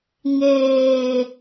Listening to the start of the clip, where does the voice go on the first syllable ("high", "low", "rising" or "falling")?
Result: low